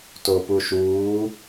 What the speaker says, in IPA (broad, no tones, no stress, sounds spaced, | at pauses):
t o p u ʃ uː